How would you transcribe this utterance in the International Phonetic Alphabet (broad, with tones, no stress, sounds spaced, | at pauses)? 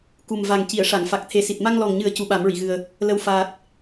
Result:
k u˨˩ m v a˨˩ ŋ c i˨˩˨ ə̯ ʂ a˨˩˨ ŋ f a˨˩ k̚ t̪ʰ e˨˩ s i˨˩ t̚ m a˧ ŋ l ɔ˨˩ ŋ ɲ ɨ˨˩˦ ə̯ c u˧˥ ɓ a˨˩˦ m ɹ i˨˩˨ ɣ ɨ˨˩ ə̯ | l ə˧ w f aː˨˩ t̚